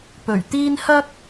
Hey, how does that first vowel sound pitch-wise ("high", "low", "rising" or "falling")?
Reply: low